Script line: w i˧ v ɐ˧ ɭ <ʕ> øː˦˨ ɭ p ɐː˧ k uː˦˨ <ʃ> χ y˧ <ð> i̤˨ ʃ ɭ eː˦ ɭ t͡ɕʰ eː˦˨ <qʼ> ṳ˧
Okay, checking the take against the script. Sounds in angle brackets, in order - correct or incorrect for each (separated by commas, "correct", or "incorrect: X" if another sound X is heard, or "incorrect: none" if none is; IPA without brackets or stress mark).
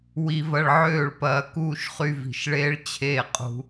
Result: correct, correct, incorrect: v, correct